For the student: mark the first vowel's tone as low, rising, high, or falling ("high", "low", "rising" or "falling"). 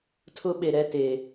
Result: high